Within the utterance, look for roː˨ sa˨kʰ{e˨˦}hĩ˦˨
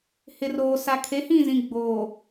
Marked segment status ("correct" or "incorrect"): correct